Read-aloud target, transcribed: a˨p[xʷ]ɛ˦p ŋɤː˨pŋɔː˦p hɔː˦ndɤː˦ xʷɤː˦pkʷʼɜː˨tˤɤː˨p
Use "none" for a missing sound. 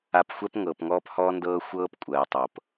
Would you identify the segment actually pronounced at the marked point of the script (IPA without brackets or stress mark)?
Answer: xʷ